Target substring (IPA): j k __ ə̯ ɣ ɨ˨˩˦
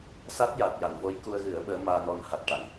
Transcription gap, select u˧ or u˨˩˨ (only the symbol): u˧